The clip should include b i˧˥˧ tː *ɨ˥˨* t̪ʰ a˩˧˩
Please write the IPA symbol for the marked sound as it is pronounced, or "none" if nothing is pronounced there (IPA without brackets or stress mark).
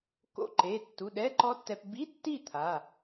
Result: i˥˨